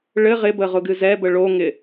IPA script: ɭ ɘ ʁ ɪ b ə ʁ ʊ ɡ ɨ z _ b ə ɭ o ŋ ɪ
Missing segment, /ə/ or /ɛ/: ɛ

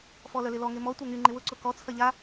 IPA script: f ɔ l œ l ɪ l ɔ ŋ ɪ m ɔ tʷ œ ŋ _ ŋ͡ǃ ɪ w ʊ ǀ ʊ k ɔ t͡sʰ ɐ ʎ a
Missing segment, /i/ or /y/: y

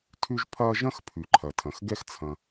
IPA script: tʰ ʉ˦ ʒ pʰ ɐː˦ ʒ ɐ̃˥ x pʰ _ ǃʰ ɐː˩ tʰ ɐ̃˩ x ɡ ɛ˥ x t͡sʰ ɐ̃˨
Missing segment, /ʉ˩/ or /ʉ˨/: ʉ˨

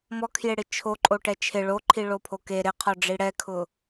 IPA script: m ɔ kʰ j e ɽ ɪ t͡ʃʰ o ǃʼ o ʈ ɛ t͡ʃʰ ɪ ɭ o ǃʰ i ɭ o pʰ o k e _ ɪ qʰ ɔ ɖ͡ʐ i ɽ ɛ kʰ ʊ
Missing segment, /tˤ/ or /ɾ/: ɾ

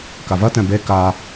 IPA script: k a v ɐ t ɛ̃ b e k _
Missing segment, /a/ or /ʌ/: a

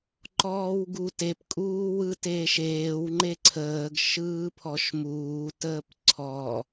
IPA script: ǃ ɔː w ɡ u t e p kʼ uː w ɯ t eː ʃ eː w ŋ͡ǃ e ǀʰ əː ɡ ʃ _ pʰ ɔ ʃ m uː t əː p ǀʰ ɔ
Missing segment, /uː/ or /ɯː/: ɯː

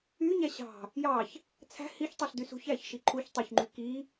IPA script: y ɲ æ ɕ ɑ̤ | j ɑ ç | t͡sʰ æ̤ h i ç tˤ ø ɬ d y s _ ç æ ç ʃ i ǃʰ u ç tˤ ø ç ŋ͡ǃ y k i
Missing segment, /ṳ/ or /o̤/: ṳ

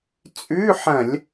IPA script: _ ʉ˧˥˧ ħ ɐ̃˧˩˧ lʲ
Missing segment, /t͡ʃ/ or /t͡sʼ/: t͡sʼ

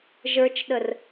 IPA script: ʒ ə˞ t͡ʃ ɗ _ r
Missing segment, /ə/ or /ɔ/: ə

